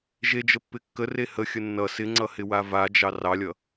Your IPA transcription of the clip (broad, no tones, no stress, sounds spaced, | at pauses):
ʒ e d͡ʒ ə pː ɪ kː ə r e h ə xʲ ə nː ʌ s ɪ ŋ͡ǀ ʌ h ɪ w a v a d͡ʒ ɑ r ɑ lʲ ʌ